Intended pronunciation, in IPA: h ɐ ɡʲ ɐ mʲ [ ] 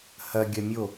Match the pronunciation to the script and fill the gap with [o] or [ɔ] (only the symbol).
o